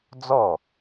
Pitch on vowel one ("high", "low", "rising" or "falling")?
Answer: falling